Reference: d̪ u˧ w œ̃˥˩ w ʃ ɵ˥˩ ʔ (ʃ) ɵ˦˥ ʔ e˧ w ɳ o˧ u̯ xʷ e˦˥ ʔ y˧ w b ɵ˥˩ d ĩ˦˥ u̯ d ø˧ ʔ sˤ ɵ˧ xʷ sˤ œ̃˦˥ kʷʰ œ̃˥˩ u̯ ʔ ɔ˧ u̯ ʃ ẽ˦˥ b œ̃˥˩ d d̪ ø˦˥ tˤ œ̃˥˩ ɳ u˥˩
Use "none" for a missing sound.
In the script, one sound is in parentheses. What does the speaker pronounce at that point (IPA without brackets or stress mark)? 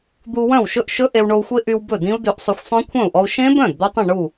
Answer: ʃ